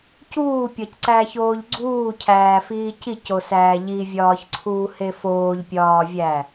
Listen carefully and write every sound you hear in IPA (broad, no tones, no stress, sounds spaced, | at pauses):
c uː pʲ ɒ c ǀ æ ç oː ʎ ɡ͡ǀ uː cʰ æː f iː c i c o s æː ʎ i vʲ ɒː ç ǀʰ uː h e f oː ʎ pʲ ɒː vʲ æ